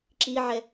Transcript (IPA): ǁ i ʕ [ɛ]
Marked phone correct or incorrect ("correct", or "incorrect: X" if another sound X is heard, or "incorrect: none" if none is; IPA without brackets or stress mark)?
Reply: correct